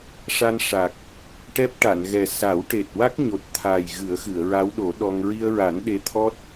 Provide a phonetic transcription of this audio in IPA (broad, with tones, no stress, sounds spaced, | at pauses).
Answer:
ʂ a˧ n ʂ a˨˩ k̚ | ʈ ɛ˦˥ p̚ ʈ a˨˩˨ n ɣ ɛ˨˩ s a˨˩˦ w ʈ e˨˩ t̚ w a˦˥ k̚ ɲ o˨˩ t̚ t̪ʰ a˨˩ j ɣ ɨ˨˩˦ ə̯ x ɨ˨˩˨ ə̯ ɹ a˧˥ w ɗ o˨˩˦ ɗ ɔ˧ ŋ ɹ i˧ ə̯ ɹ a˨˩˦ n ɗ e˧˥ t̪ʰ ɔ˦˥ t̚